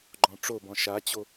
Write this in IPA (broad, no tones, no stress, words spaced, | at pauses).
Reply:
ɡ͡ǃɔ̃ʈ͡ʂobɔ̃ ʃat͡ɕo